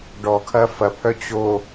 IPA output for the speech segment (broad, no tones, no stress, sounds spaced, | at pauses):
ɖ ɔ kʰ ɐ f ɐ pʰ œ t͡ɕ o